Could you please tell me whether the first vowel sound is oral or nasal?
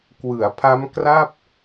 oral